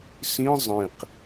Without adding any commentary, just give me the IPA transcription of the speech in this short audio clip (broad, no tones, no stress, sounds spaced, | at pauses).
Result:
s ĩ zˤ ĩ q